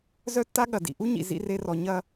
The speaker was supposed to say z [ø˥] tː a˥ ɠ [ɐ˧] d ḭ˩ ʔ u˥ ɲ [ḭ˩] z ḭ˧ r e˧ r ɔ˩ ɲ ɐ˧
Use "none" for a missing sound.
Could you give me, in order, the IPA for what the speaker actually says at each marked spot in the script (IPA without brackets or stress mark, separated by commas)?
œ˥, ɐ˩, ḭ˩